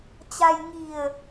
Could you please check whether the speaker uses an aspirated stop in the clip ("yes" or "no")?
no